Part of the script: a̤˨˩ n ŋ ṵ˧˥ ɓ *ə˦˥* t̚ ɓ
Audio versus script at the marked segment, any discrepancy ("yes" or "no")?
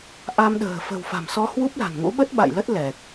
no